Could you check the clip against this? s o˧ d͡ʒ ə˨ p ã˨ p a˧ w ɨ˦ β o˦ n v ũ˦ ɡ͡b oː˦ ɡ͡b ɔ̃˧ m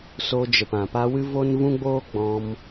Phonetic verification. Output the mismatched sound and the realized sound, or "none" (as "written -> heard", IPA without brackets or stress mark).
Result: β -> v